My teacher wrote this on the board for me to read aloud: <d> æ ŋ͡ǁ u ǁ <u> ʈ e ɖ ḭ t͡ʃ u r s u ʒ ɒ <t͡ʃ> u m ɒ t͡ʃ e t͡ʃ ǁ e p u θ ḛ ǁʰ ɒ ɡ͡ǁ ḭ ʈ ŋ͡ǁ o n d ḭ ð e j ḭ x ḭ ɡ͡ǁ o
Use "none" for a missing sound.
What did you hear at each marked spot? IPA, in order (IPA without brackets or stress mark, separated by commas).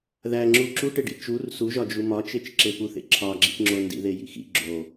ð, u, d͡ʒ